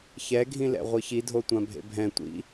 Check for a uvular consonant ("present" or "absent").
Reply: present